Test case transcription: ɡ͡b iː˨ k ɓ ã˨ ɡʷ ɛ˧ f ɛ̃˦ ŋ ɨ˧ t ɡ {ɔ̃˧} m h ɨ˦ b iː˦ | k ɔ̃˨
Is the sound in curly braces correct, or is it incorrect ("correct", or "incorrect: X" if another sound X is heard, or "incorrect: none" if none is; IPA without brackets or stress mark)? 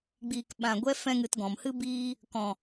incorrect: ɔ̃˨